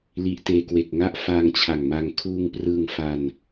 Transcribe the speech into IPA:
l i˨˩ ʔ t eː˧ k w e˨˩ k̚ ŋ a˥˩ ʔ f a˧ ŋ t͡ɕʰ a˨˩ ŋ m a˧ ŋ kʰ uː˧ ŋ p r ɯ˧ ŋ f a˧ n

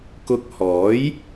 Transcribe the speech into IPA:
k ʊ˧ k̚ h ɔː˨˥ j

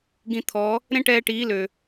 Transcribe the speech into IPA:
ɡ ĩ˧ t̪ʰ ɔ˨˦ | ɾ ẽ˦ ʈ ɛː˧ ʈ iː˨˦ l ø˨

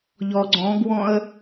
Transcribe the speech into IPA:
ʎ ɔ ɡ͡ǀ ɔ̃ ɡ w ɔ̃ ə̯

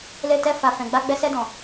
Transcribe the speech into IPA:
l e˧ t ɛ˧ f a˨ f ɛ̃˨ ɡ͡b a˧ ɡ͡b ɛ˧ s ɛ˧ d ɔ̃˨

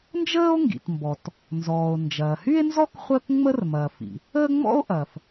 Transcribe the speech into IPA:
n d͡ʒ əː˥ o̯ ŋ ɡ ḭ˩ t m b ɔ˩ t | n z ɔː˩ o̯ n d͡ʒ ɐː˩ h y˥ e̯ n z ɔ˥ k χʷ əː˥ k ŋ͡m ə˥ r m ɐː˩ f ḭ˩ | əː˥ ŋ͡m ɔ̰˥ o̯ ʔ ɐː˩ f

